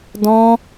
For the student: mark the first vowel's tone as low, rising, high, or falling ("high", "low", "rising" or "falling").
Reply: high